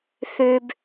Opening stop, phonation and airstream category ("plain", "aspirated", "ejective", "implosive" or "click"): plain